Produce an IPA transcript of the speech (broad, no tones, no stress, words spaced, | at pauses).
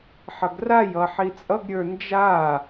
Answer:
ħʌɡrajʌ ħit͡sʼʌɡɾʲə˞ nd͡ʒa